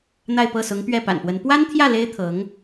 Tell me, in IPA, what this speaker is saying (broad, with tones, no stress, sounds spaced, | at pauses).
n̪ a˥˧ ɪ̯ p ɤ˥˩ s ʊ˧˥ ŋ p ɥ ɛ˥˩ p a̰˨˩ n p w ə˧˥ n p w a˥ n t̪ʰ j ä˥˩ l e˥ ɪ̯ t̪ʰ ɤ˧˥ ŋ